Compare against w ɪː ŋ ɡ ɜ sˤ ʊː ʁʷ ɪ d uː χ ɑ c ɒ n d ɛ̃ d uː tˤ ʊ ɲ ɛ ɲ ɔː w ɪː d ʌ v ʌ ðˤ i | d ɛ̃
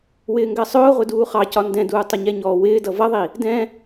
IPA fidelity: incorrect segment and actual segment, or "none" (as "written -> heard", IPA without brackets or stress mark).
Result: none